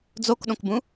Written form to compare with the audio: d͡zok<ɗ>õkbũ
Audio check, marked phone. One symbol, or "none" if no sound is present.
ɗ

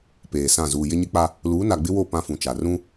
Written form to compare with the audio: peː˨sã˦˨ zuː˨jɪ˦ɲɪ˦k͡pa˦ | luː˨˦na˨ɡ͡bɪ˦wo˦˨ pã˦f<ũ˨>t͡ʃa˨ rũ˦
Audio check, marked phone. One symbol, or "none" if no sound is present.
ũ˨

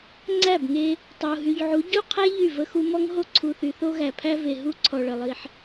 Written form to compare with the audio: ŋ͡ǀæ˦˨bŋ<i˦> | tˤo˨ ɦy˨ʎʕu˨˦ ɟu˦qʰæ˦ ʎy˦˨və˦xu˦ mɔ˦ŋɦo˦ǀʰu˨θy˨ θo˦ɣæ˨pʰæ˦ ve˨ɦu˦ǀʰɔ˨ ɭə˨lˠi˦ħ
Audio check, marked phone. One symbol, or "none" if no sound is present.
e˦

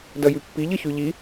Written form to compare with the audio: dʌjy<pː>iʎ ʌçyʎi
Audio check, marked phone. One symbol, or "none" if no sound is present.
pː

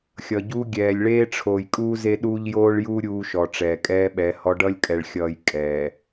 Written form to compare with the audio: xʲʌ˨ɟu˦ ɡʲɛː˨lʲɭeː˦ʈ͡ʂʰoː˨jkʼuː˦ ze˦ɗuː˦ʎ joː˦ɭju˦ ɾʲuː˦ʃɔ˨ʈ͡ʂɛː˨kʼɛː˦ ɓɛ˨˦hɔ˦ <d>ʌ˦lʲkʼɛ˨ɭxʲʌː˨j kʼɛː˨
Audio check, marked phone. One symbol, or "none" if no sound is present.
ɖ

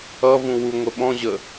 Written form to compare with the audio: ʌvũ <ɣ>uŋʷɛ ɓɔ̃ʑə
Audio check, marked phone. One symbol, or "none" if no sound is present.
w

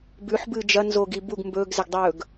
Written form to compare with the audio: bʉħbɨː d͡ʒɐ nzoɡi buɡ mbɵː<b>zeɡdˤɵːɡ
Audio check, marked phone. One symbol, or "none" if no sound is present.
ɡ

